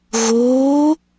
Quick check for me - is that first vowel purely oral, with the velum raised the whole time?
yes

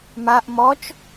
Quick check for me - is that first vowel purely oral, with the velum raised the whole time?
yes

